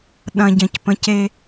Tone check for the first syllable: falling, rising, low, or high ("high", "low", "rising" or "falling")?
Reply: low